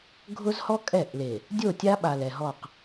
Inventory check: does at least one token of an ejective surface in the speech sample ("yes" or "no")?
yes